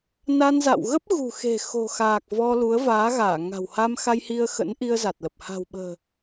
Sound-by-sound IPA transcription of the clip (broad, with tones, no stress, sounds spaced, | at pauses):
n a˧ n z a̰˧˨ w ɣ ə˦˥ p̚ ɣ ṳ˨˩ x e̤˨˩ x o̤˨˩ x aː˨˩ k̚ v ɔ˧ l u˨˦ ə̯ v aː˨˦ ɣ aː˧˩ ŋ a̤˨˩ w h a˧ m x a˧ j h i˧ ə̯ x ə̰˧˥ n ʔ i˧ ə̯ z a˨˩ t̚ l ə˨˩ p̚ h a̤˨˩ w ɓ ə̤ː˨˩